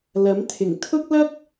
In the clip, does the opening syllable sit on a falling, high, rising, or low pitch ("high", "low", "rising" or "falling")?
rising